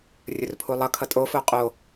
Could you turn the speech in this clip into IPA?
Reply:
rʲ ɵ r pʰ u lˠ ʌ kʰ ʌ tʼ o f o qʼ o

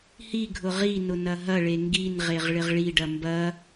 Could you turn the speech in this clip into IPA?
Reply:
h i ɡʱ ʊ ʁ i n ʊ n ɐ ɦ ɐ ɭ e ŋ ɡ i n ʁ e ʁ ɭ ɪ ʁ ɭ i ɖ ɐ m b ɐ

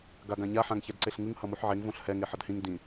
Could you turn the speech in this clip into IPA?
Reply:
ɡ a ɡ ã ɲ a ħ ã ŋ ç ɛ d ǀ e ɬ ŋ ɯ ŋ h ʌ m u ħ ʕ e ŋ v õ ɬ h ɛ ŋ e ħ ʌ d h ĩ ŋ d ĩ

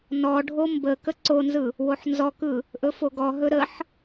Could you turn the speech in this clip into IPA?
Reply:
n ɔ ɖʱ o m b ə k ə ǀ o n z ɯ | w o ħ n z ɔ k ɯ | ʔ ɵ f o ɡ ɔ ɦ ɵ ɾ ə ħ

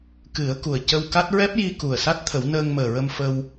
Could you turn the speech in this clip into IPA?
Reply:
k ɨ˨˩˦ ə̯ k u˨˩ ə̯ c ə˧ w k a˦˥ t̚ ɹ ɛ˦˥ p̚ j i˧ k u˨˩ ə̯ s a˦˥ t̚ t̪ʰ ə˨˩˦ w n əː˧ ŋ m əː˨˩ ɹ ə˧ m f ə˧ w

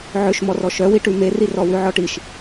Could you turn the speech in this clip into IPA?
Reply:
ʕ ø ʃ m ɔ r ɔ ʃ œ w i ʈ ʉ m e r i r ɔ w ʉ ʕ ɔ ʈ i ʃ

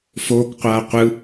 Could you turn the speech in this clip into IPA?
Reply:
f oː k qʷ aː qʷ ɯ

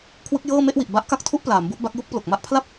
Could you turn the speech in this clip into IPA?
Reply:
kʰ w ɯ˦˥ k̚ j ɤː˥˩ m e˥˩ ʔ w i˨˩ ʔ b a˦˥ ʔ k a˥˩ k̚ tʰ u˥˩ ʔ p l aː˩˦ m b u˦˥ ʔ b a˦˥ k̚ j u˥˩ k̚ p l o˨˩ k̚ m a˥˩ ʔ pʰ l a˥˩ p̚

